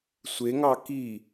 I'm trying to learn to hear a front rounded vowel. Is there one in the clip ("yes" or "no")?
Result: no